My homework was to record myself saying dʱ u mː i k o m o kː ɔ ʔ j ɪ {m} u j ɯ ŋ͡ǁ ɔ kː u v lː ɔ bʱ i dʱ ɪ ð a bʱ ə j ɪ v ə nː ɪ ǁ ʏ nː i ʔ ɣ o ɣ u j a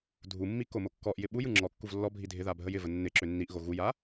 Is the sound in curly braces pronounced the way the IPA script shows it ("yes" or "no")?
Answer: no